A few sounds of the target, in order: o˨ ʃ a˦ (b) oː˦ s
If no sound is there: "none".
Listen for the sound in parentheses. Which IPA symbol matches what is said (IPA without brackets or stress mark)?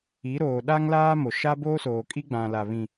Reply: b